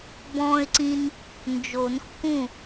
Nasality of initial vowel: nasal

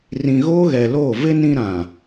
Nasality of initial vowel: nasal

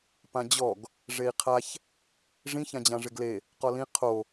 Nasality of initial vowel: nasal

